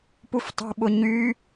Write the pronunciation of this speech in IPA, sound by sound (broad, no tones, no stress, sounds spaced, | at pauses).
p u f tˤ ṳ ɓ ʊ ɲ y